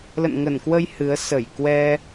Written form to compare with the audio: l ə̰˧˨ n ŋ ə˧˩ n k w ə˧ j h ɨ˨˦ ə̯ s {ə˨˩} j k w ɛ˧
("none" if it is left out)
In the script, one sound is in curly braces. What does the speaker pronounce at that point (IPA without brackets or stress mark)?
ə˧˩